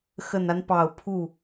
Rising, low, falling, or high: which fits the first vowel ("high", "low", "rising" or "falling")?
low